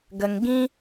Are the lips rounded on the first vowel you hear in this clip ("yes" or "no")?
no